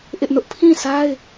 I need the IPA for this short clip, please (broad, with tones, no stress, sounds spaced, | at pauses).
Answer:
ʔ ɪ˦ ʔ n ʊ˦ ʔ pʰ ĩ˦˨ s a˦ ɪ̯